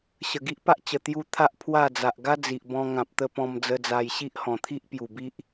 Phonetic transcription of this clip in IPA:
ɕ ə˨˩ ɡ i˦ ʔ p a˦ ʔ t͡ɕ ə˨˩ t̪ j u˧ t̪ʰ a˦ ʔ pʰ w a˥˧ d͡z a˨ ʔ ɡ a˦ d͡z i˨ ʔ b ɔ̃˧ ŋ ã˨ p̚ t̪ ə˧ p ɔ̃˧ m d͡z ə˧ d͡z a˧ j ɕ i˦ ʔ h ɔ̃˨˩ t̪ʰ i˦ ʔ p j u˨˩ b i˦ ʔ

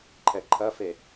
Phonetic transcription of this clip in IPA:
ǃʰ ɛ ǃʰ ɐ f e

